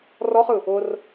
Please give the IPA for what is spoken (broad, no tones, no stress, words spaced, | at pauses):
rɔχɯ | ʊr